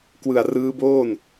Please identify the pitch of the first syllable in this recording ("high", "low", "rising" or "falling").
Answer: low